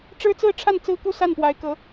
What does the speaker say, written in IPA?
ʈ͡ʂ ɻ̩˥ t͡s ɹ̩˥˧ ʈ͡ʂʰ a˥˩ n t͡s ɹ̩˥ k u˥˧ s a˥˩ n p w a˧˥ ɪ̯ k ɤ˧˥

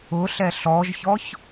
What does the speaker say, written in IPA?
ʊ ɬ ɛ ɬ ɔ ʒ ç ɔ ç

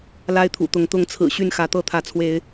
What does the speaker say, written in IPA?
l a˦ ɪ̯ t̪ʰ ṵ˨˩ t̪ ʊ˨˦ ŋ t̪ ʊ˨˦ ŋ t͡sʰ ɹ̩˨˩ ɕ y˥˨ n x ä˨˦ t̪ ɤ˦ t̪ʰ ä˨˦ t͡sʰ w e˨˦ ɪ̯

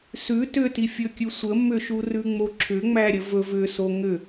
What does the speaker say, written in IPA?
s ʉ t ʏ t i fʲ ɵ kʲ ʉ sʷ ə m ʏ ʃ u r ʉ ŋ͡m o ǁʰ ʏ ŋ͡m æ ɾʲ ə v ɵ v ʏ s o ŋ ʏ

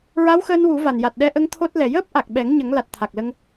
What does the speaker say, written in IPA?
ɹ a˧˥ w x əː˧ n w u˨˩˦ v a˨˩ n j a˨˩ t̚ ɗ ɛ˧ ʔ ə˧ ŋ t̪ʰ o˦˥ t̚ l ɛ˨˩ j əː˦˥ p̚ ʔ a˨˩ k̚ ɓ ɛ˨˩˦ ŋ ɲ ə˨˩˦ ŋ l a˨˩ t̚ t̪ʰ a˨˩ k̚ l ə˧ ŋ

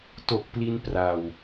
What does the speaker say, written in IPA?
t o˨˩ k̚ p l i˧ n p r a˧ w

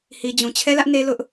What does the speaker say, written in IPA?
h i˨ d͡ʑ ũ˨ t͡ɕʰ ɛ˦ l ä˦ ʔ n e˦ l ʊ˦ ʔ

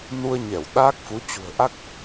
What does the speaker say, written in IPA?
n u˧ ə̯ ɲ ɛ˧˩ w ɗ aː˦˥ k̚ f u˨˦ t͡ɕ ṳ˨˩ ə̯ ʔ a˦˥ k̚

